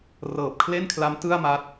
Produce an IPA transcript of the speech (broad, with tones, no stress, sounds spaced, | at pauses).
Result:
r ɤː˨˩ p̚ kʰ l e˥˩ n kʰ l a˦˥ m t ɯ˥˩ a̯ m a˦˥ t̚